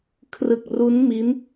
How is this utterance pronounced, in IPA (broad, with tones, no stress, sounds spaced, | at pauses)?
kʰ r ɯ˨˩ k̚ r u˦˥ n m i˦˥ n